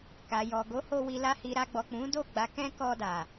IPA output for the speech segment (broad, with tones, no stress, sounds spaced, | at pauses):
k a˨ j ɔ˨ ɡ o˨˦ h o˧ w i˨ l a˧ h i˨ ɾ a˧ ɡ͡b ɔ˨ k͡p ũ˨˦ d o˦˨ ɡ͡b a˨˦ k ɛ̃˦ k ɔ˧ d a˨